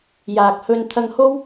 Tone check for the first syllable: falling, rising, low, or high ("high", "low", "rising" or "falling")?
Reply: low